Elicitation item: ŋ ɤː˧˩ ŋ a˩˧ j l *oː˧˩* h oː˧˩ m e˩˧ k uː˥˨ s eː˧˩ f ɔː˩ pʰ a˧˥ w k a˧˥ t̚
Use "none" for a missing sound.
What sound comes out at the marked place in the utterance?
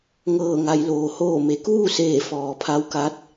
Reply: oː˩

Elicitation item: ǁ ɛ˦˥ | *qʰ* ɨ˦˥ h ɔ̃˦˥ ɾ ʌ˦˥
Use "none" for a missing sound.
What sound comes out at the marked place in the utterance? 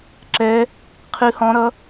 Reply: qʰ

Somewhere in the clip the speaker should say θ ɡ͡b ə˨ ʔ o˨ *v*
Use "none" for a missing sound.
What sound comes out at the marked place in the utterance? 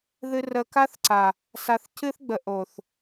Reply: θ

